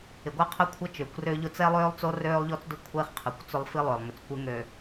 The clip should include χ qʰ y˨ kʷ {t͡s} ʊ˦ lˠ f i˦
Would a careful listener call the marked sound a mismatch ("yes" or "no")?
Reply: no